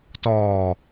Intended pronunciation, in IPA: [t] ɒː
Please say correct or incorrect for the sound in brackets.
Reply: correct